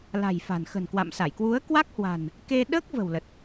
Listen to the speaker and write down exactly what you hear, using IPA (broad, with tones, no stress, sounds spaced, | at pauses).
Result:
l a̤˨˩ j f a̤˨˩ n x ə̤˨˩ n k w a̰˧˨ m s a˧˩ j k w u˨˦ ə̯ k w a˦˥ k̚ h w a̤˨˩ n | k e˧ ɗ əː˦˥ k̚ v ə̤˨˩ w l ə˨˩ t̚